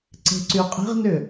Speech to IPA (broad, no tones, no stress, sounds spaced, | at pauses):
ǀ e̤ ǀ y qʼ e̤ ʁ n ʏ